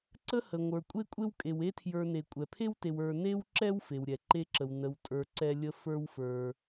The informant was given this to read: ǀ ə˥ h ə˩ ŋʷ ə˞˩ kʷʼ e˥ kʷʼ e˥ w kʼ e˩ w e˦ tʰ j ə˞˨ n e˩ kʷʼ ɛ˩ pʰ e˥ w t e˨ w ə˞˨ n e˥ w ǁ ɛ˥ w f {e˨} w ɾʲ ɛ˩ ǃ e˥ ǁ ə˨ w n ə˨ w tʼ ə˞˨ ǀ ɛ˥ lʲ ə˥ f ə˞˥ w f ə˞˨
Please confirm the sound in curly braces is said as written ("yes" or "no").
no